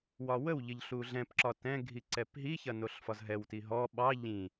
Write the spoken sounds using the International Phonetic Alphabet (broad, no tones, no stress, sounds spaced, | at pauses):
w ɒ w ə w ʎ ə ʎ ɬ u ɮ ɛ̃ p ǁ ɒ t ɛ̃ ɡʱ i ǀ ɛ p ɦ i ç ɐ n o ɬ f ɒ z ɦ ɛ w t i ɦ ɔ ɓ ɑ ʎ ĩ